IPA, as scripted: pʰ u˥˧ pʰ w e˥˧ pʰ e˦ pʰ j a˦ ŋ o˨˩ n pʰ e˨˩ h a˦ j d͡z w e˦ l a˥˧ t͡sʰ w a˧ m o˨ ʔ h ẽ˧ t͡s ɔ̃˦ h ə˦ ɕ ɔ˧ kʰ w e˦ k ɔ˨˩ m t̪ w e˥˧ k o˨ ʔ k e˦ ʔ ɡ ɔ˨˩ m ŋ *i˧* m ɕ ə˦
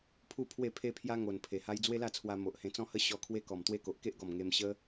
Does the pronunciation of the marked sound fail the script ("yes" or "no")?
yes